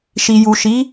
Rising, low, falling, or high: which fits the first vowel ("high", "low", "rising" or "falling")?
low